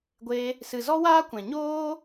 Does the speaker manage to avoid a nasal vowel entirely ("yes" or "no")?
no